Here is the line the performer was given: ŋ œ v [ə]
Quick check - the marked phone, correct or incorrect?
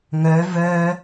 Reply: incorrect